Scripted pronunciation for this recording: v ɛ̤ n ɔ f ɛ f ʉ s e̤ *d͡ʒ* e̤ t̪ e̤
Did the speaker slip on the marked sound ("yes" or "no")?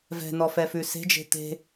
no